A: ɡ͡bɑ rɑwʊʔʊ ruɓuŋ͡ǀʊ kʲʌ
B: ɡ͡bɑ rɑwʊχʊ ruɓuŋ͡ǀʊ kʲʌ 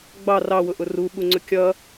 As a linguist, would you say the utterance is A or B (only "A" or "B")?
A